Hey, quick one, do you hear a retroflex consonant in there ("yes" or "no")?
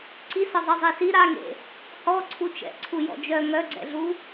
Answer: no